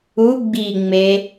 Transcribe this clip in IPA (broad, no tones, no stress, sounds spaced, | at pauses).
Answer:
u ɡ͡b i ŋ͡m e